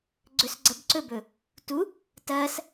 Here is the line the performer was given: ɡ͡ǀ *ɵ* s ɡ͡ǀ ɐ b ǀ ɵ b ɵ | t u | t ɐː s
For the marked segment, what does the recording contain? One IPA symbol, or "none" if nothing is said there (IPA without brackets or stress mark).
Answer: ɵ